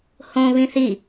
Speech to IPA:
hõ βĩθi

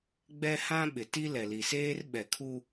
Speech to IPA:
ɡ͡bɛ˦hã˦ɓɪ˨ti˦ lɛ˨li˨seː˦r ɓɛ˨kʰu˦

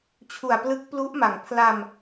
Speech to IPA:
t͡ɕʰu˨˩a̯plɯ˦˥k̚plu˦˥ʔma˩˦ŋ pʰla˧m

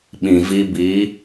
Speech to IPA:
ɓĩ˨ vi˧bi˨˦

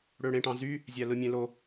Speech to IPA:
ɽøɽẽʈɑ̃zy | zʲælɯmʲẽlo

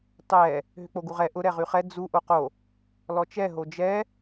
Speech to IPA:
tˤɛ | ɦʏk͡poɡuʁɛ ʔʊ ɾɛʁyχɛ d͡zu ʔoqo | lɔt͡ʃɛ ɦod͡ʒɛ

